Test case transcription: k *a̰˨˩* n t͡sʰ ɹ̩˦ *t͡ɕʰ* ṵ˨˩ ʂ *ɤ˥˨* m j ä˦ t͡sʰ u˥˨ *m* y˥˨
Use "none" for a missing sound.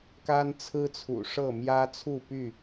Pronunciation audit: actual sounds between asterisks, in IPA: a˦, t͡sʰ, ɤ˥˨, p

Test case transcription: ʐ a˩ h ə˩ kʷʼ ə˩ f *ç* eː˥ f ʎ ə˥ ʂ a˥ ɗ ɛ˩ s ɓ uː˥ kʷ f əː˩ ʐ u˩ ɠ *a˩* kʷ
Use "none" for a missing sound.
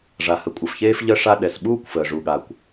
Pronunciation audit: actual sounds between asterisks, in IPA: ç, a˩

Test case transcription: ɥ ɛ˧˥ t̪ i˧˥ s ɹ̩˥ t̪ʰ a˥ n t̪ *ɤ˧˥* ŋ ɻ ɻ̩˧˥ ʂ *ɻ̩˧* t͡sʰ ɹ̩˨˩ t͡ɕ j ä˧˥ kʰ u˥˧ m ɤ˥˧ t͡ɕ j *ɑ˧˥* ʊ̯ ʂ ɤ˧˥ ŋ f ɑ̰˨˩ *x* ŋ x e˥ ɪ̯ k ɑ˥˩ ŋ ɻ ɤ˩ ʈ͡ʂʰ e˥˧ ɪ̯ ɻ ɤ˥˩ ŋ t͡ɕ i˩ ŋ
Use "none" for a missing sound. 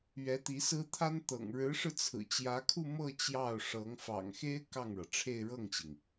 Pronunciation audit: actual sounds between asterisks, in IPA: ɤ̰˨˩, ɻ̩˧, ɑ˥˩, none

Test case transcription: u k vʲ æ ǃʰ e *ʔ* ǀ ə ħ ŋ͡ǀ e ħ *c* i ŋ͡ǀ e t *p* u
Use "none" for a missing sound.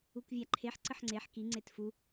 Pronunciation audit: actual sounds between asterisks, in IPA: ħ, k, f

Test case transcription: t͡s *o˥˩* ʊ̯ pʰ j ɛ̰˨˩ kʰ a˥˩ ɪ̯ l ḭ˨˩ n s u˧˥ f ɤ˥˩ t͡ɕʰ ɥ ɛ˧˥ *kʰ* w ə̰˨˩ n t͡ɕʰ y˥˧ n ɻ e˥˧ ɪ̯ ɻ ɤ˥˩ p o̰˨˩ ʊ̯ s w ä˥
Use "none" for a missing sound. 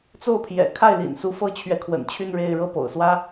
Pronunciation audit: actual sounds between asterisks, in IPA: o˥˩, kʰ

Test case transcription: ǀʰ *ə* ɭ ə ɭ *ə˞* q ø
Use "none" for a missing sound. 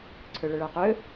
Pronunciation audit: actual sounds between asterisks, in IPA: ø, ə˞

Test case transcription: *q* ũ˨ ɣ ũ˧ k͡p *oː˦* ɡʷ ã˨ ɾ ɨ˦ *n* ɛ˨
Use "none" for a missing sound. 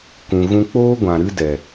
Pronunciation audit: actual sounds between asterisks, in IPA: k, oː˦, d

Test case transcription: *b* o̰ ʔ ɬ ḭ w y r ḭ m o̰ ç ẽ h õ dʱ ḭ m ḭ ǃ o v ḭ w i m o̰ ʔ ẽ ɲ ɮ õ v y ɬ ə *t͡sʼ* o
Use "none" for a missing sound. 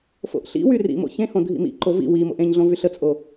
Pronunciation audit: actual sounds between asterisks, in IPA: f, t͡sʼ

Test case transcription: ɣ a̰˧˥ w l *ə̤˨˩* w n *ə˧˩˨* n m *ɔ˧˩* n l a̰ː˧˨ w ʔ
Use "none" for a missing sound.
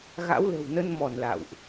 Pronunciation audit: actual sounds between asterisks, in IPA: ə̤˨˩, ə˧, ɔ˧˩

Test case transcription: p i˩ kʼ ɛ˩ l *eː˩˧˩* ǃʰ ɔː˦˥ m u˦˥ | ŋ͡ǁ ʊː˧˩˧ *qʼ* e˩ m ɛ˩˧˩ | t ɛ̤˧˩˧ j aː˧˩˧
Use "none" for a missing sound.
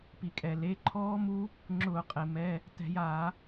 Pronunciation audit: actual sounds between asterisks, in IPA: e˩˧˩, qʼ

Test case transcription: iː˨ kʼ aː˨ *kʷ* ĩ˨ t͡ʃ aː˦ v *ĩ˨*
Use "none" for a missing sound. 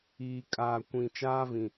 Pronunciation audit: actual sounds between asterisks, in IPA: kʷ, ĩ˨

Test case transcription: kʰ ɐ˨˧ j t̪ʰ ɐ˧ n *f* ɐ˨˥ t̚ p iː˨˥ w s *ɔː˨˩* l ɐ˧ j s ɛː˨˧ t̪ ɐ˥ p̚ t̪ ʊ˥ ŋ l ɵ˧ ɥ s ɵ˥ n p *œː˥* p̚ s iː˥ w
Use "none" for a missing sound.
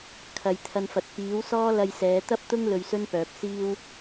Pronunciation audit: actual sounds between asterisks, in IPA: f, ɔː˥, œː˨

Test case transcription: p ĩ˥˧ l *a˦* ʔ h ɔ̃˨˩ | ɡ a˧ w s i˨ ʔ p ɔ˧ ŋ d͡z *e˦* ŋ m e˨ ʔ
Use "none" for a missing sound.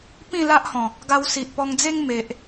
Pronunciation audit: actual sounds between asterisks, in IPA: a˦, e˦

